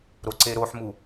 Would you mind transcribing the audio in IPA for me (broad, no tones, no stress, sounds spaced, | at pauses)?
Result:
ɾ o ǀ e ɾ o ħ m u